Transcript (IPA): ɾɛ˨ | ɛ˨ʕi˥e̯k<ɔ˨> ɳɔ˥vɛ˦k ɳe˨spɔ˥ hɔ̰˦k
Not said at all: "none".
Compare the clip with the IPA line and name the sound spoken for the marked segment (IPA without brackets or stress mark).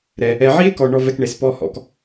ɔ˨